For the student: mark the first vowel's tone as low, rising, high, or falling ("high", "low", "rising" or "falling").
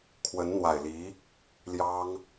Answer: rising